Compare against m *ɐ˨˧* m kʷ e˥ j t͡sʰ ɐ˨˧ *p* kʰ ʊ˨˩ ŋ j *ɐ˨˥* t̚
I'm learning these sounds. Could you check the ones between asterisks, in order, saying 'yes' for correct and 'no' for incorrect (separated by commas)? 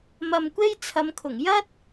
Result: no, no, no